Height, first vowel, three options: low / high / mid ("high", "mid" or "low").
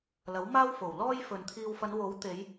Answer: low